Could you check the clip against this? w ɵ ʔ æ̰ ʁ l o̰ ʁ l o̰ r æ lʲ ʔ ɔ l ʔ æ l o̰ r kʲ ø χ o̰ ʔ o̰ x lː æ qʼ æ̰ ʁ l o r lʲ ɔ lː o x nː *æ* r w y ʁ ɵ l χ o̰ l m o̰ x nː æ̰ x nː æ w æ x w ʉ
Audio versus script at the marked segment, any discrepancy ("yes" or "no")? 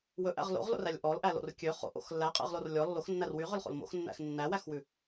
no